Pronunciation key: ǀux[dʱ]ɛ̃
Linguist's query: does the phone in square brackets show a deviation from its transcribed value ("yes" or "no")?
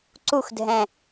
no